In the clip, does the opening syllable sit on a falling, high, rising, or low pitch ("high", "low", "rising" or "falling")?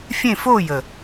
falling